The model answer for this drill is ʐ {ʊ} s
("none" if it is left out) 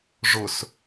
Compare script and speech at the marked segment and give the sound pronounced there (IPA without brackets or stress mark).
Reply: ʊ